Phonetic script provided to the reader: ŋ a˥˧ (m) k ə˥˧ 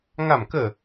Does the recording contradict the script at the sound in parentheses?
no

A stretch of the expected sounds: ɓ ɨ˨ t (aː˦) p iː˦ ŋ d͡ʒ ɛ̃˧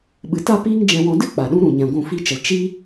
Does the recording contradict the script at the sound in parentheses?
yes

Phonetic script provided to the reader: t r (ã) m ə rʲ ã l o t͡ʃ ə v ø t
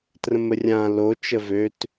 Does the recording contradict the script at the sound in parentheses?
yes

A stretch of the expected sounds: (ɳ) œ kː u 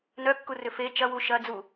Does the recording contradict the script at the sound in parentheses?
yes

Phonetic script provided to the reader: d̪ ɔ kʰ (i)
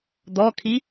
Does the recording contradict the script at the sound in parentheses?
no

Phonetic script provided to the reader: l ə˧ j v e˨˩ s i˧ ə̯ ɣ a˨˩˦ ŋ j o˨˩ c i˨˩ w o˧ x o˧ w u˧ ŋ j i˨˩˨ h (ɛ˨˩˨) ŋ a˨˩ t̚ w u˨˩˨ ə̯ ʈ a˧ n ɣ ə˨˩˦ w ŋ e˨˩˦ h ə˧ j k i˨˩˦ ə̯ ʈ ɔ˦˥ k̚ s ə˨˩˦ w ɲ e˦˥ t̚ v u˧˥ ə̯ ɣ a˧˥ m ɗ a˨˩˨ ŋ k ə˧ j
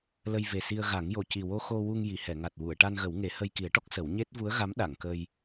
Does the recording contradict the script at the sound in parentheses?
no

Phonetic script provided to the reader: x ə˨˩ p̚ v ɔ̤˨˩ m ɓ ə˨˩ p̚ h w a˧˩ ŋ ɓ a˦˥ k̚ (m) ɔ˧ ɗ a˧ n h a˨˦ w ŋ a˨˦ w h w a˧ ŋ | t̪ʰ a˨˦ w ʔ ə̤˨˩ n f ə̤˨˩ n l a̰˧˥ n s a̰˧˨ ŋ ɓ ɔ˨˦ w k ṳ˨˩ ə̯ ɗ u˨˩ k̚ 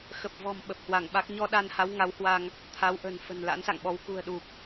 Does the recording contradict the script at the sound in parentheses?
yes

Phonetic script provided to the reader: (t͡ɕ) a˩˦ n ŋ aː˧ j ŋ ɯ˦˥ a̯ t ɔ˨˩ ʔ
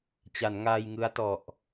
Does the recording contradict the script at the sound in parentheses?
no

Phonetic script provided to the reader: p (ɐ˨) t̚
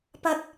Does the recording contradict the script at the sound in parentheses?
yes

